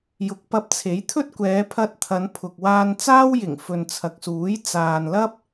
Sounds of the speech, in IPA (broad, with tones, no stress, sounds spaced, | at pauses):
j ʊ˨ k̚ p ɐ˧ p̚ t͡sʰ e˨˥ j t̪ʰ ɵ˥ t̚ kʷ ɛː˨˧ pʰ ɐ˧ t̚ t̪ʰ ɐ˨˧ n pʰ ʊ˨ k̚ w aː˧ n t͡s aː˥ w j ɪ˨˩ ŋ f ɵ˨ n t͡sʰ ɐ˨ k̚ s uː˨˥ j t͡s aː˨ n l ɐ˥ p̚